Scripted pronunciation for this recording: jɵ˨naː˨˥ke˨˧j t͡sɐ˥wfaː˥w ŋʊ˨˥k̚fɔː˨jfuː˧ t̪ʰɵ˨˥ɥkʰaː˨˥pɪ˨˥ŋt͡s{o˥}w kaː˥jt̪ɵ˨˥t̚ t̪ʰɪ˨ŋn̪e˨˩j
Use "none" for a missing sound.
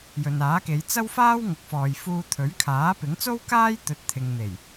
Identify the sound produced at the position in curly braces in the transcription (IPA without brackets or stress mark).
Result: o˥